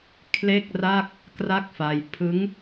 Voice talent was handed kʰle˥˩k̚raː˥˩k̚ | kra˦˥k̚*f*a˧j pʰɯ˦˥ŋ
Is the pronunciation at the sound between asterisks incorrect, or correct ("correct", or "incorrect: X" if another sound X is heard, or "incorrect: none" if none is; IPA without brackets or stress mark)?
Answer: correct